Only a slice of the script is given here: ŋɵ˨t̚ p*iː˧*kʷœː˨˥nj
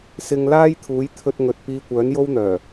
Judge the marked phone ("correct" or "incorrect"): correct